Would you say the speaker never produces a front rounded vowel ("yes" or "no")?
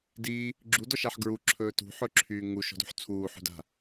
no